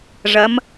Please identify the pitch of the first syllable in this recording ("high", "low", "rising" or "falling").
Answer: rising